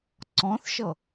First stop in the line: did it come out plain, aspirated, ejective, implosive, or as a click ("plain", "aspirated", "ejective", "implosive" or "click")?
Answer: click